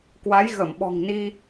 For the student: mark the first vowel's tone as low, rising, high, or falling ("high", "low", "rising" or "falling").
rising